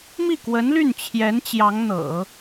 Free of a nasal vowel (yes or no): yes